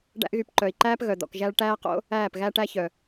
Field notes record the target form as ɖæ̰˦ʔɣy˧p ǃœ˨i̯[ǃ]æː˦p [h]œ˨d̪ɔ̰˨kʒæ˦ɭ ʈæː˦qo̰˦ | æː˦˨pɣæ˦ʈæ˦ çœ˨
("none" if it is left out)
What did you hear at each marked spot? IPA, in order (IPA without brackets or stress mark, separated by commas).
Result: ǃ, ɣ